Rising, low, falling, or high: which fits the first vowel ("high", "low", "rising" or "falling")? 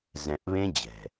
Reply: low